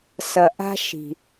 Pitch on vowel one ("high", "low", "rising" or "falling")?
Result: low